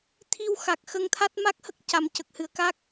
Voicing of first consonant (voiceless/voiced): voiceless